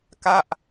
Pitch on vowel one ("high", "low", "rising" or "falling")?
falling